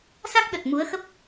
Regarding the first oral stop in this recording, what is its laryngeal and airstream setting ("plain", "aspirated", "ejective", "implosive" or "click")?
plain